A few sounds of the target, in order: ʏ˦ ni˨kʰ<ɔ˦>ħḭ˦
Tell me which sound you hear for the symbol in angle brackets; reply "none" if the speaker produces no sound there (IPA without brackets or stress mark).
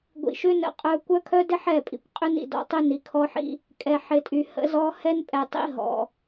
ɔ˦